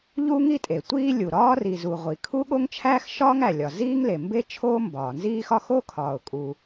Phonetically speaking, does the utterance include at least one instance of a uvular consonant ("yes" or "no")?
yes